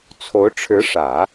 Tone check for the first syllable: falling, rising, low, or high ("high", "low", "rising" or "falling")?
rising